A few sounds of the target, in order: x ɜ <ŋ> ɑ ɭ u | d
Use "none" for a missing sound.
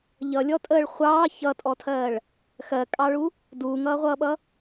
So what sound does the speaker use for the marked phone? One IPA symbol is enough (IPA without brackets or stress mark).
kʼ